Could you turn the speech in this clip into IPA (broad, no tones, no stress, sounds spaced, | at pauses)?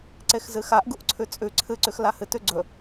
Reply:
ǀ e x z ɨ x a ʔ ɡ u ʔ ǀʰ ʉ t͡sʼ ʉ ǀʰ ɨ ǀ ʉ x l a h ɨ t ʉ ɡ͡ǀ ɵ